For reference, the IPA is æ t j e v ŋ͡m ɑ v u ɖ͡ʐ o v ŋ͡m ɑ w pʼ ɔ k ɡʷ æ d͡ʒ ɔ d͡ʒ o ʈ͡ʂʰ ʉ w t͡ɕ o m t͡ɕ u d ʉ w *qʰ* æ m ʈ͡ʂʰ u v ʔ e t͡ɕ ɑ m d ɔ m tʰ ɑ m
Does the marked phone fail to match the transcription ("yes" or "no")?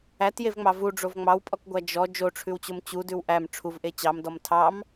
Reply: yes